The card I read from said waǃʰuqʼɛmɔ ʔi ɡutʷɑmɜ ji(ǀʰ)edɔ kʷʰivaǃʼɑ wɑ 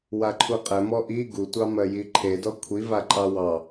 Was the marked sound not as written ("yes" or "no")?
yes